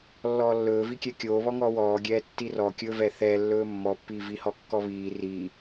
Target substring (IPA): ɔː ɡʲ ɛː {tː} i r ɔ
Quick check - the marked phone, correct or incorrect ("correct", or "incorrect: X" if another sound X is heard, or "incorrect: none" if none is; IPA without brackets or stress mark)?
correct